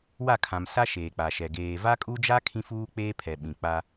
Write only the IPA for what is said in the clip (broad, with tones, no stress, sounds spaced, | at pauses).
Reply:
w a˦˨ kʰ ã˨ m s a˦ ʃ eː˨ k͡p a˨ ʃ ɛ˨ ɡ eː˨ v a˦ kʼ u˦ d͡ʒ a˦ kʰ ĩ˦ f uː˦ k͡p eː˦ pʰ ɛ˨ ɓ ĩ˨ k͡p a˦